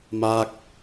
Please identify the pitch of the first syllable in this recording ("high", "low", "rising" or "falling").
falling